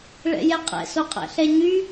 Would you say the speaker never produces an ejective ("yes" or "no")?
no